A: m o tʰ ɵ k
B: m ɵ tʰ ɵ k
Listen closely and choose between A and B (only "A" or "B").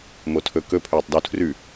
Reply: A